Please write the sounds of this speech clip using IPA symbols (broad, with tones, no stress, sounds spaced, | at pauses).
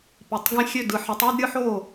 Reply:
p i˩˧ tˤ ɡ ẽ˧˩ xʲ ø˧˩ d ɯ˩˧ ħ ɯ˩˧ tˤ u˥˨ d ɾʲ ɯ˧ ħ o˧˩